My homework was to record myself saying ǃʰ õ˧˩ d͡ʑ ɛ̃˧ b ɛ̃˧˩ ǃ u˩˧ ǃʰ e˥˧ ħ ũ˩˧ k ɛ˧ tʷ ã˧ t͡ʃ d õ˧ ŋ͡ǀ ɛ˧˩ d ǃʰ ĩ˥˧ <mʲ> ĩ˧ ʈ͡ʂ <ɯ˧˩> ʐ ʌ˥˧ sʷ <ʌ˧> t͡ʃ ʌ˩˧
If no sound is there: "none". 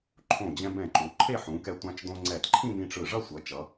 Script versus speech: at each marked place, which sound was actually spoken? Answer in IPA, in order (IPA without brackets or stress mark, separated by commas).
m, ɯ˧˩, ʌ˩˧